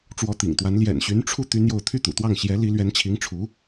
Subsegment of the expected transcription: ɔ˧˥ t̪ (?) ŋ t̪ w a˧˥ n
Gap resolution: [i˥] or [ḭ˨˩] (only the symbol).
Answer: ḭ˨˩